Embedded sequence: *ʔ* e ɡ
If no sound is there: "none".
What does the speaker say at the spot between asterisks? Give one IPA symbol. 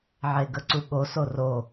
ʕ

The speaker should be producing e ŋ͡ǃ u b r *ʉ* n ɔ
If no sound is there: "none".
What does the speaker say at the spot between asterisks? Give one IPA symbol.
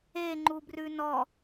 ʉ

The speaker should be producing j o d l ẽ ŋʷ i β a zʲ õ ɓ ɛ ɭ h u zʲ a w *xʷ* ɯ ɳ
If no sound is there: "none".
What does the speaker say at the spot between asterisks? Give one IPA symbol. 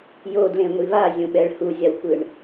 kʷ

